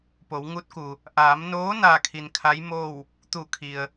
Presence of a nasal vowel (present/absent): absent